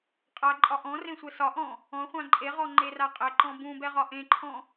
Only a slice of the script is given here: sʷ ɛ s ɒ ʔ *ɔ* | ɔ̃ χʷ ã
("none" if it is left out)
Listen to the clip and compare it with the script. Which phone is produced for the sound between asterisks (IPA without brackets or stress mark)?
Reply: ɔ̃